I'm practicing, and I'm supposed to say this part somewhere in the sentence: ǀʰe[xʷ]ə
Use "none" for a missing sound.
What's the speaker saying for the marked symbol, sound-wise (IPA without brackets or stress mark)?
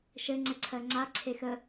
x